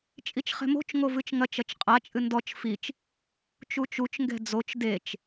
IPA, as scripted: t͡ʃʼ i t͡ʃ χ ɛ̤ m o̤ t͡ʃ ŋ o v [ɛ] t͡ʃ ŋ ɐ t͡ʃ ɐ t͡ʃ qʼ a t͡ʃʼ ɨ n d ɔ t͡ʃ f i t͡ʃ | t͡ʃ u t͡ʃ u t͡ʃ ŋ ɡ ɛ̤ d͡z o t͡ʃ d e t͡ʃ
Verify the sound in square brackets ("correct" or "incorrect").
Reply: incorrect